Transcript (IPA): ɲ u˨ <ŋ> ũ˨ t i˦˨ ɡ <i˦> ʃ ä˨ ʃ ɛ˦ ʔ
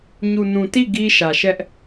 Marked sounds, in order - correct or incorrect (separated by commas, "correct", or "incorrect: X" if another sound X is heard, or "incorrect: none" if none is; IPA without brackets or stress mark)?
incorrect: n, correct